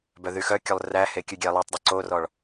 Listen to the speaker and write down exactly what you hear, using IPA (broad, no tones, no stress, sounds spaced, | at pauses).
b œ ð y x œ kʲ ɵ lˠ r æ h e kʲ ʉ ɡʲ ɛ lˠ y tˤ dˤ ɵ ǀ o r ɔ ɭ